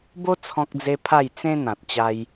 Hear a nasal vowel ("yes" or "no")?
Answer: yes